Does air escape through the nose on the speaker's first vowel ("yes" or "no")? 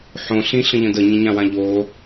yes